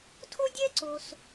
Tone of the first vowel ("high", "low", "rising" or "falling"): high